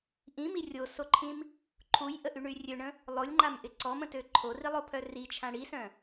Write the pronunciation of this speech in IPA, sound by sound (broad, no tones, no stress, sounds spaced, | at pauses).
ʔ ĩ m i rʲ o s o ǃʰ ĩ m | ǃʰ u j ʔ ə ʔ y ɳ y rʲ ø ɳ ə̃ | lˠ o lʲ ŋ͡ǃ a m ʔ ɪ ǀ ɔ m ə̃ t ø ǃʰ o r i lˠ o pʰ œ r i t͡ʃʰ ã ɽ i s œ̃